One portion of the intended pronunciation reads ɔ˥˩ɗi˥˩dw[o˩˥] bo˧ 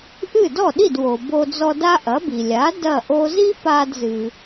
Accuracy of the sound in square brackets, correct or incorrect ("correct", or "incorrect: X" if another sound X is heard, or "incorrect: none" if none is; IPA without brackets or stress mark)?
incorrect: o˩